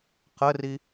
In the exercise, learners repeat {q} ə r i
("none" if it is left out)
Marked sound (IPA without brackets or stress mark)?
q